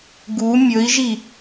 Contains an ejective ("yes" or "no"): no